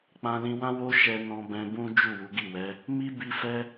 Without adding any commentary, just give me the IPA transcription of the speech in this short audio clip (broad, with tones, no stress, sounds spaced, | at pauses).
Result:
k͡p ã˧ l ĩ˧ w ã˦ w o˦ ʃ ɛ˧ n ɔ̃˧ b ɛ̃˧ b ũ˦ d͡ʒ u˦˨ w u˨˦ ɡ i˦˨ w ɛ˨˦ | m i˦ b i˧ f ɛ˦